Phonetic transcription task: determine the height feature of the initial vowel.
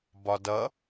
low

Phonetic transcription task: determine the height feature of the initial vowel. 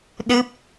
high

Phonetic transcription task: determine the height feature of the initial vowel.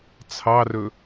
low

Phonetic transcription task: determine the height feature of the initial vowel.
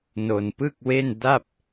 mid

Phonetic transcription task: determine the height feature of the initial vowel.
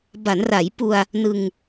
low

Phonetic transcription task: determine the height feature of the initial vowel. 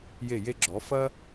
mid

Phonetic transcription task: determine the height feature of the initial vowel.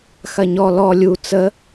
low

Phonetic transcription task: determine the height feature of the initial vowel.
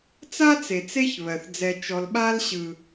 low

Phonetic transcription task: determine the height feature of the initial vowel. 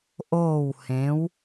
mid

